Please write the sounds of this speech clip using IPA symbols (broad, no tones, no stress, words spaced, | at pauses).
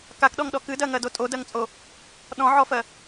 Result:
kakɗɔŋɗɔ kɨdɜŋɜdo tʼodɜŋt͡sʼo | ɗɔ̃ʕɔfɜ